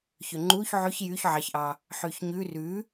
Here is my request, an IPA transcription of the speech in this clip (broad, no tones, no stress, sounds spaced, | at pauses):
ç ø ŋ͡ǃ u ç ʕ ʉ ç j y ç ʕ ɑ ç ʔ ɑ | ħ y ç ɲ ʉ r ʉ